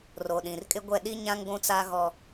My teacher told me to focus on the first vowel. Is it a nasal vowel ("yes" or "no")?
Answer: no